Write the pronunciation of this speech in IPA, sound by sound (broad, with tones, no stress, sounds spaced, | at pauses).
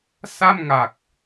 s a˥˩ m ŋ a˨˩ k̚